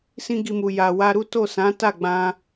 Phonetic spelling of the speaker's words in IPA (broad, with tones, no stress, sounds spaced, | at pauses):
s ĩ˦ ɡ i˧ m u˨ j a˨ w a˧ ɾ u˦ t o˦˨ s ã˨˦ t a˦˨ ɡ͡b ã˧